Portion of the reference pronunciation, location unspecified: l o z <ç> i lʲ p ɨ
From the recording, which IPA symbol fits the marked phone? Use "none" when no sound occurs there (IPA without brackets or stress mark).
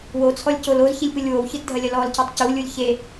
ç